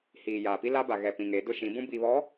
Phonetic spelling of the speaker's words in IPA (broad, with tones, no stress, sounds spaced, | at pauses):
h iː˨ j aː˨ p i˦ l a˦ b a˨ ɣ ɛ˨ p ĩ˨ ŋ e˨˦ d ʊ˦ ʃ ĩ˨˦ b ũ˦ b iː˨ β ɔ˨˦